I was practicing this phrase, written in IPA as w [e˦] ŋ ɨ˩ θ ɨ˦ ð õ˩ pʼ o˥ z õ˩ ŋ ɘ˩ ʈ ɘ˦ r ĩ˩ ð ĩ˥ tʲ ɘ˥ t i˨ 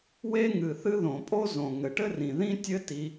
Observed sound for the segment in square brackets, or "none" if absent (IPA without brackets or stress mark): e˦